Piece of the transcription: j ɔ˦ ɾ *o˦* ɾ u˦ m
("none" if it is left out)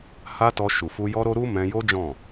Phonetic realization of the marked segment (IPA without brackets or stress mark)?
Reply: o˦